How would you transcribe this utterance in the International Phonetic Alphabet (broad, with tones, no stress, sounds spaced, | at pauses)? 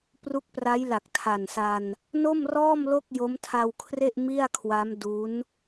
p r u˦˥ k̚ p r a˦˥ j l a˨˩ k̚ tʰ a˨˩ n s a˧ n | n o˥˩ m r ɔː˥˩ m l o˥˩ k̚ j o˦˥ m tʰ a˧ w kʰ r e˥˩ ʔ m i˥˩ a̯ kʰ w a˦˥ m d u˦˥ n